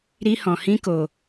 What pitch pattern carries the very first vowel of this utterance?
high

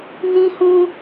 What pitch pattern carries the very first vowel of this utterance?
high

